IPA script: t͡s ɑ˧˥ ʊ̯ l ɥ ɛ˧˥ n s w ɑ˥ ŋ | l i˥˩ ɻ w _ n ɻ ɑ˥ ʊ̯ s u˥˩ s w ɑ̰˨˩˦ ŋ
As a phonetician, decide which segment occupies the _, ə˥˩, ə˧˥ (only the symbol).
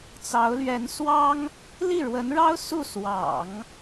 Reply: ə˧˥